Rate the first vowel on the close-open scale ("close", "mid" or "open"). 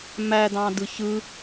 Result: open